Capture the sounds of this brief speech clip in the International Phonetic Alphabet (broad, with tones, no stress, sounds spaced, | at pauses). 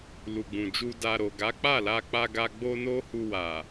l u˨ ɡ͡b ũ˨ d͡ʒ u˧ d a˧ ɾ o˨ ɡ a˨˦ k͡p a˦˨ l a˧ k͡p a˧ ɡ a˧ ɡ͡b o˦ n o˦ h u˧ w a˨